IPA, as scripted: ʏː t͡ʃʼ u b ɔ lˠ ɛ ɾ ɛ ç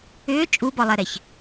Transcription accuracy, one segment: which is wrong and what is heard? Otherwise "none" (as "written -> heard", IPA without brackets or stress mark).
none